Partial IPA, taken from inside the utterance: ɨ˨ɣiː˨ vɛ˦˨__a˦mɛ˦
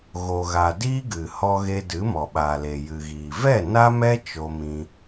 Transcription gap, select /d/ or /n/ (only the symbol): n